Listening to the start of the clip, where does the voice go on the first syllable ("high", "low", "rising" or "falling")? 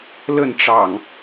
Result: falling